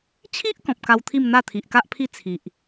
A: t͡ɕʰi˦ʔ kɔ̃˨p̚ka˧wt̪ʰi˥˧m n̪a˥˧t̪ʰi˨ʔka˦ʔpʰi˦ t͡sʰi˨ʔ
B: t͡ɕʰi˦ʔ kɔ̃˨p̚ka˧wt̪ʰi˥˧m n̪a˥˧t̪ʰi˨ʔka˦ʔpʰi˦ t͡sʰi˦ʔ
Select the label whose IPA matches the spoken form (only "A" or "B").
A